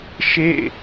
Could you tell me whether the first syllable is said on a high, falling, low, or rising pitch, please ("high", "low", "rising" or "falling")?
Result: falling